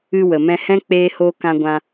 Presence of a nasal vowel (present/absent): present